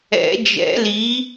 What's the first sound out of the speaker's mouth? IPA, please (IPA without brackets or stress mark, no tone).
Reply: ɛ̰